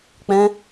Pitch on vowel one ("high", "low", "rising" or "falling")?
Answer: high